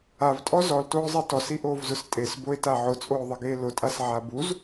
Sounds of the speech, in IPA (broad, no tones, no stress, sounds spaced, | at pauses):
a v tʼ ɔ z ɔ l t oː zˤ e t ɔ s i ʔ oː v z ʊ s tʼ e s b o e̯ t a ʕ ʊ t͡sʼ oː ðˤ ɪ ɡ eː l ʊ tʼ a s ʕ a b u z